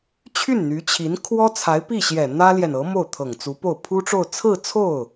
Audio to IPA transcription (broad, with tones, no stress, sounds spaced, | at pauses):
t͡ɕʰ y˥˩ n n̪ y˧˥ t͡ɕʰ i˧˥ n kʰ w ɔ˥ t͡sʰ a˧˥ ɪ̯ p i˥˩ ɕ j ɛ˨˩ n̪ ä˥ l j ɛ˨ n ɤ˧˥ m o˥˩ ʊ̯ t̪ʰ ɤ˨˩ ŋ t͡s u˧˥ p o˥˩ ʊ̯ pʰ u˥ ʈ͡ʂ o˥˧ ʊ̯ t͡sʰ ɹ̩˥˧ t͡sʰ o˥˩ ʊ̯